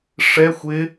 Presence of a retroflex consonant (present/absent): present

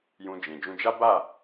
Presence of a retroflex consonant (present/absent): absent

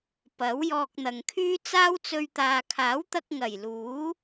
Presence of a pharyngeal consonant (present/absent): absent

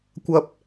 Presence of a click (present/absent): absent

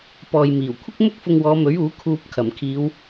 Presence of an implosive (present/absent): absent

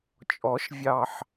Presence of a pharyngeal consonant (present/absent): present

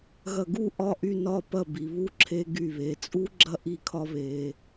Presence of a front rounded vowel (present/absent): present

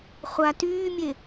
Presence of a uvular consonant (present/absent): present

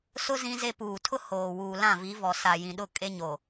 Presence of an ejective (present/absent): present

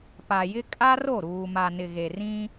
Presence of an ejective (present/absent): present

